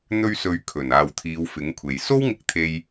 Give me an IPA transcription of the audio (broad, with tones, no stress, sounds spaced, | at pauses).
n̪ ɵ˧ ɥ s ɵ˨ ɥ kʰ ɵ˨˩ n aː˨˩ w t̪ʰ iː˨˧ w f ɪ˨˥ ŋ kʷʰ e˨ j s o˥ w ŋ ɪ˧ k̚ t̪ʰ e˧ j